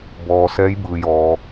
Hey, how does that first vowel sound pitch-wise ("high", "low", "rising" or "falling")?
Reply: low